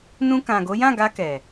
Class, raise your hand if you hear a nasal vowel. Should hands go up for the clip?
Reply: yes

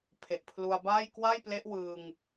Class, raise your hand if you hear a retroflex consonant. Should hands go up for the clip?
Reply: no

